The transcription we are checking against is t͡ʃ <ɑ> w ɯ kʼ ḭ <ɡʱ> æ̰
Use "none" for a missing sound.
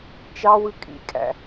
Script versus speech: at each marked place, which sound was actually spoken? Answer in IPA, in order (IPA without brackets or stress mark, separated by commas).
ɑ, kʼ